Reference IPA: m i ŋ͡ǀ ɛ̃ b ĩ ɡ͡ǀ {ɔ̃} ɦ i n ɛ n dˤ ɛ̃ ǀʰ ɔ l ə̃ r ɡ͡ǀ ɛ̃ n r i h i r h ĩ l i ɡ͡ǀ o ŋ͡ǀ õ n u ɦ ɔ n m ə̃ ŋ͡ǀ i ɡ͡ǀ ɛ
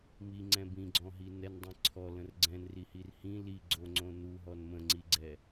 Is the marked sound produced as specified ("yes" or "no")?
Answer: yes